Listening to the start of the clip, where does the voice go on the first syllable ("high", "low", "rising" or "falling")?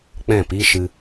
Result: falling